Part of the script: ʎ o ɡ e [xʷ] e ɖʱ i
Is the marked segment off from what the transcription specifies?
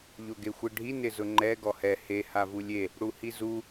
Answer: no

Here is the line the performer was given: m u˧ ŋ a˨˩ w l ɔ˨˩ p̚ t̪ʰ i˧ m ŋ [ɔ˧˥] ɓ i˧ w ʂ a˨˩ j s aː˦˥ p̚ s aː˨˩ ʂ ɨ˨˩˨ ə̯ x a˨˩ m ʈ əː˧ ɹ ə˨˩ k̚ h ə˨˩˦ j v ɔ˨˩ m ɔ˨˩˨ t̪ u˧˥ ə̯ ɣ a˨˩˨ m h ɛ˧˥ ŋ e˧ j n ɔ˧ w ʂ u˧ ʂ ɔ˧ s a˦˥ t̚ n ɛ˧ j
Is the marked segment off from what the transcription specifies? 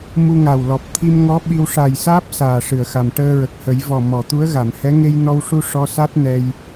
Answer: no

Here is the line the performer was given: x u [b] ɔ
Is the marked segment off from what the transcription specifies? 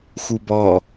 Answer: no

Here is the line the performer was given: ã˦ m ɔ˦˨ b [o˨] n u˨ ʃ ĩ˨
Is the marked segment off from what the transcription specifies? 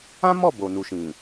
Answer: no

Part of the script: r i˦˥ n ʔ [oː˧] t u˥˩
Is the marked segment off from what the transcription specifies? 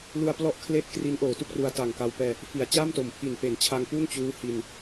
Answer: yes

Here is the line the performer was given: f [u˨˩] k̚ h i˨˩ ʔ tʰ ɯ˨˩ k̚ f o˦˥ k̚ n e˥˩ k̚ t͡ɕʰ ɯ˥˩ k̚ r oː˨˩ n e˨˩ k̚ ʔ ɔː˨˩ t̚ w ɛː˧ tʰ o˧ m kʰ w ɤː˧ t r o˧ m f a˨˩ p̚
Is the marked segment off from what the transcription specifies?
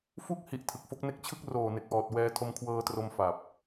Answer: yes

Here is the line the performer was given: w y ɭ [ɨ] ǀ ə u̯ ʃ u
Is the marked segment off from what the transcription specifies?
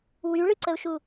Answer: no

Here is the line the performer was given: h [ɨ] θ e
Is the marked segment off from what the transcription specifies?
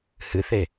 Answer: no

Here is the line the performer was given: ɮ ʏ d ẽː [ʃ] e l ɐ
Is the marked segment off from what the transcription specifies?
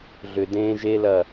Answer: yes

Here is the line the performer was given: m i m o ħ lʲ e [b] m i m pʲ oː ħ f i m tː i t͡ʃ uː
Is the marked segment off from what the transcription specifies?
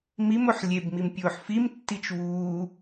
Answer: no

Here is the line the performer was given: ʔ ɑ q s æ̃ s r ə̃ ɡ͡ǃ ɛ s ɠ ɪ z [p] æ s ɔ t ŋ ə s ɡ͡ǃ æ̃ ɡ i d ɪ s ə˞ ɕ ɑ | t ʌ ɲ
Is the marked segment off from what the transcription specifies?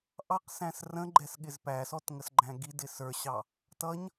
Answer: no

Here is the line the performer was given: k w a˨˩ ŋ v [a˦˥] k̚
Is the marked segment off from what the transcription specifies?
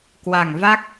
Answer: no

